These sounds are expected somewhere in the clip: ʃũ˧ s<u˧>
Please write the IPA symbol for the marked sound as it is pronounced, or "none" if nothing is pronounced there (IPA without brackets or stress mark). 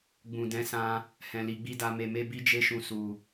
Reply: u˧